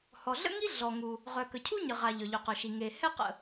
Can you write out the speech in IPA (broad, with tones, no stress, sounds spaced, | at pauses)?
h ɔ˩ ɮ ə̰˥ ŋ i˥ ɮ ɔ˩ ŋ u˩ | ʁ œ˩ k ə˩ cʰ u˥ ɲ ə˩ ʁ a˩ ʎ œ˩ ʎ ø˩ q œ˩ ʃ i˩ ŋ e˩ h ɛ˥ q ə̰˩